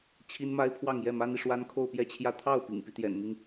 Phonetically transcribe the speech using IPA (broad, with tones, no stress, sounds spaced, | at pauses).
t͡ɕʰ i˥ n m a˥ ɪ̯ pʰ w ɑ˥˧ ŋ j ɛ˥˩ m a˥ n i˨ ʂ w a˥ n kʰ o˥˧ ʊ̯ p j ɛ˥˧ t͡ɕʰ j ä˥˧ t̪ʰ ɑ˥˩ ʊ̯ p ḭ˨˩ ŋ p i˦ t̪ j ɛ̰˨˩ n m i˦ ŋ